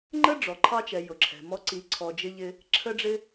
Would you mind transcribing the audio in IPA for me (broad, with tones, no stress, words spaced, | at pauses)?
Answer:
ŋ͡ǃə˦ɖ͡ʐɔ˨ǃʰɑ˧t͡ʃɛ˨ jʊ˨ǁʰɛ̤˨mɔ˧ ǀi˧ǀʰɔ˧ d͡ʒɪ˧ʎɪ˧ | ǁʰə˦ɖ͡ʐɪ˦